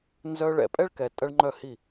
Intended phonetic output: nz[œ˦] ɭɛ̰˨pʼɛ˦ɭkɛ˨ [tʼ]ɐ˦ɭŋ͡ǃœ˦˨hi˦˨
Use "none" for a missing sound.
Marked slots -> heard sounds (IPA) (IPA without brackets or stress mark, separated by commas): œ˦, tʼ